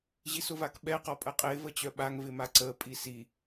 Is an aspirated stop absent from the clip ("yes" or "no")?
yes